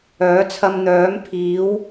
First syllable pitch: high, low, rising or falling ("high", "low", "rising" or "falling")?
rising